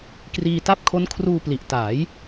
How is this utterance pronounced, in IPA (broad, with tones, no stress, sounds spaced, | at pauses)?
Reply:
k r iː˧ t a˥˩ p̚ kʰ o˦˥ n kʰ r uː˧ p l i˨˩ ʔ t aː˩˦ j